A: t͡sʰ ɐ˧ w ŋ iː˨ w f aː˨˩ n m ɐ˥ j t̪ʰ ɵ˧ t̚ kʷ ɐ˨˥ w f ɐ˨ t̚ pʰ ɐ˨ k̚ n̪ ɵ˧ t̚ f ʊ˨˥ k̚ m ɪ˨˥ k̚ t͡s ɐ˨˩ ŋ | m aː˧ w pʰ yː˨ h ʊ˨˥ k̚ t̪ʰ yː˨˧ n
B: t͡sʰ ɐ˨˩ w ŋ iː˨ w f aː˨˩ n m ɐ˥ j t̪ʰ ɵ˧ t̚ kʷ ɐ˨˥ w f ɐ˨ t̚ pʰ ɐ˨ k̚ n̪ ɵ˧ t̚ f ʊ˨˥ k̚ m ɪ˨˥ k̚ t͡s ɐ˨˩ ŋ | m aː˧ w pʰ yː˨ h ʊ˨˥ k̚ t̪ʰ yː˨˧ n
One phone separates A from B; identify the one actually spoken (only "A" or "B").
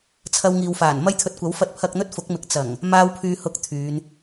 A